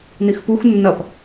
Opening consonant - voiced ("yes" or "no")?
yes